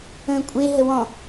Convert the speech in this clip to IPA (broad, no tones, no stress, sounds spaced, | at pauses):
ə̃ː kʷʼ e ɦ ə w ɔ̃